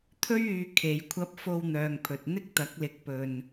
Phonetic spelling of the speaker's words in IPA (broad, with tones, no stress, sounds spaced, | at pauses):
t̪ʰ ɵ˥ ɥ yː˧ kʰ e˨˧ j kʷʰ ɐ˧ p̚ f o˧ w n̪ œː˨ ŋ pʰ ɵ˨ t̚ n̪ ɪ˥ k̚ t̪ ɐ˨˥ k̚ l ɪ˨˥ k̚ p ɵ˨ n